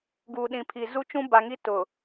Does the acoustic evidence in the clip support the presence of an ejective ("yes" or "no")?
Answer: no